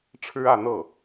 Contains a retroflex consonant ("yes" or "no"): yes